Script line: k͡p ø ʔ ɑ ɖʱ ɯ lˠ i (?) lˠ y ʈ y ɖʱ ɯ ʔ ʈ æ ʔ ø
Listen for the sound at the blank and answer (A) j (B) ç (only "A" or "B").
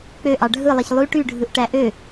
B